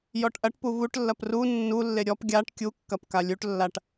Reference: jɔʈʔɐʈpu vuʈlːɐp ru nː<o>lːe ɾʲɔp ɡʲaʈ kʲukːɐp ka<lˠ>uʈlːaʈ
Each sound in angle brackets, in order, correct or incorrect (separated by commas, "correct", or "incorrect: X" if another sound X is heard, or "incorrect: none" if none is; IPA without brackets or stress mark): incorrect: u, incorrect: lʲ